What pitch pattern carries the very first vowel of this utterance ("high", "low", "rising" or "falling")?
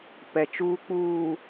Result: low